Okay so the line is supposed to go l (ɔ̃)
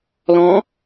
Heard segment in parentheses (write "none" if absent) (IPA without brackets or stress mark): ɔ̃